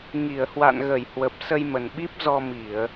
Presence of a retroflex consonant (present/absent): absent